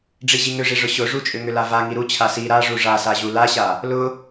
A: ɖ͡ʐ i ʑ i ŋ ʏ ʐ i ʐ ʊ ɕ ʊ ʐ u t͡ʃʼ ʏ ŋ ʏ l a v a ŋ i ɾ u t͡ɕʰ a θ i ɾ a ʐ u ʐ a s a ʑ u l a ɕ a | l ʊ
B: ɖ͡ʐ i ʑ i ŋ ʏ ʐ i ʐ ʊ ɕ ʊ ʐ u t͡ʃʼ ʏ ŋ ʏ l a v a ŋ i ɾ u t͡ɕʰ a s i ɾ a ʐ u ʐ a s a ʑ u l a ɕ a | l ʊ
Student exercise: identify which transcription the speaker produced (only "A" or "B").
B